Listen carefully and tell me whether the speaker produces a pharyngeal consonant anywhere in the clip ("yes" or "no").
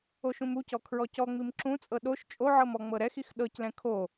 yes